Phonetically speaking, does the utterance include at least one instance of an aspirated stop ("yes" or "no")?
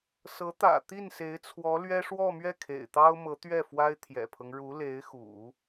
yes